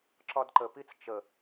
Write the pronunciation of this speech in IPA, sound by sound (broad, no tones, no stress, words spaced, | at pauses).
ǁɒdǃə pit͡st͡ʃə